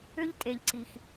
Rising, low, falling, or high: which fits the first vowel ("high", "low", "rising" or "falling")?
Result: high